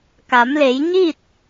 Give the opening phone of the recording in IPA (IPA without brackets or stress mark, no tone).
k